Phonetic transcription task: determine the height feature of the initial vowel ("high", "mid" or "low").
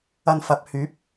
low